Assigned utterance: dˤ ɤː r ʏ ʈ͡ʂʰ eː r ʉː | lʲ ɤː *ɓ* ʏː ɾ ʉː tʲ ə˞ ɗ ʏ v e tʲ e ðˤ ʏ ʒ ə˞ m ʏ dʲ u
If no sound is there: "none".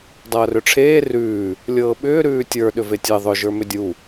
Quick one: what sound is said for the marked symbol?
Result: ɓ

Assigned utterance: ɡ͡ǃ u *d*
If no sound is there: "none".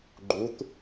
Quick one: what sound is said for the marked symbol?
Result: t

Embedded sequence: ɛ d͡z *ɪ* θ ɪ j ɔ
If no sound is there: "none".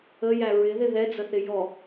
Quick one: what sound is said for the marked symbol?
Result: ə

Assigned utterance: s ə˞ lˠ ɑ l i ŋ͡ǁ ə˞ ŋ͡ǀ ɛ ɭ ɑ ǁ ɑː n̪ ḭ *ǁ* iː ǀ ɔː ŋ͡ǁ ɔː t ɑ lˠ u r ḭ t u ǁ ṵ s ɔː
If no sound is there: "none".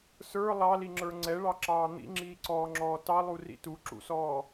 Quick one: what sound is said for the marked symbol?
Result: ŋ͡ǁ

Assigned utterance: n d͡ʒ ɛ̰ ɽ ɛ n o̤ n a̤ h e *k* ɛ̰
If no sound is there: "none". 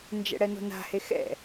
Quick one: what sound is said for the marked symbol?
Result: x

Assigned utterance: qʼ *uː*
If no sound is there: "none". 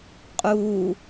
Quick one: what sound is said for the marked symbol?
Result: uː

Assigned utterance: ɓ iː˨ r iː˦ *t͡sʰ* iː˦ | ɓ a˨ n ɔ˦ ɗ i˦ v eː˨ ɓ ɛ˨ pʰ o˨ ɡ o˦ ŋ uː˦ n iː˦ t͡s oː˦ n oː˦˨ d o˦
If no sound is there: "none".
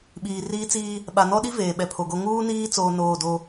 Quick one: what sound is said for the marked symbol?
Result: t͡s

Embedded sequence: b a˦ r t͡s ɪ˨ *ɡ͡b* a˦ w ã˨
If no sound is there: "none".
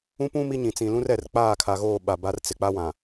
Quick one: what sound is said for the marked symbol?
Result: k͡p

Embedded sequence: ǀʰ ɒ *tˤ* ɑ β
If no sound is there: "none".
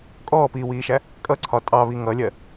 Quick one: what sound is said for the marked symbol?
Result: tʼ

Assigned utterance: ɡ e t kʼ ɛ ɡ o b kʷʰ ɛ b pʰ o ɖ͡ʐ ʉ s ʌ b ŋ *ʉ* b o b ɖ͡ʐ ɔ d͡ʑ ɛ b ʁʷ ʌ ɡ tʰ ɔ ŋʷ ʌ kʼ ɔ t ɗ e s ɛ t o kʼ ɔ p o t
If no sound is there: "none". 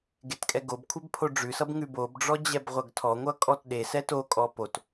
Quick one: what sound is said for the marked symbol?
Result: ʉ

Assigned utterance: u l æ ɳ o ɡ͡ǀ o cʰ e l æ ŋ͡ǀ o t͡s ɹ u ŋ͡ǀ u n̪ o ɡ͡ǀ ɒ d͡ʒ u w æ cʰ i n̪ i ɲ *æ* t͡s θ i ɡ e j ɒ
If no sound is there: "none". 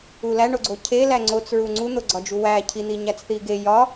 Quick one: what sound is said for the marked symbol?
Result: æ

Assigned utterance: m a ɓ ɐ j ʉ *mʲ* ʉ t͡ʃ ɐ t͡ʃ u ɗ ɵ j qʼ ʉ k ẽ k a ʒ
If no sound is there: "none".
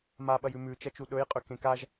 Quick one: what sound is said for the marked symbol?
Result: m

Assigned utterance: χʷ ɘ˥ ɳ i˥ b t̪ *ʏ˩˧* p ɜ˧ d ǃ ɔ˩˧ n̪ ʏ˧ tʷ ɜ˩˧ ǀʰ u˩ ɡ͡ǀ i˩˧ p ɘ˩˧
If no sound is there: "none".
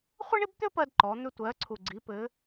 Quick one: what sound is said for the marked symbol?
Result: ʏ˥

